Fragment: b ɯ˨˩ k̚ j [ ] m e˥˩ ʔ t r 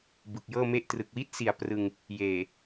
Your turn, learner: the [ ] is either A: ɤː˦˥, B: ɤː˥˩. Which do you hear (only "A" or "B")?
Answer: B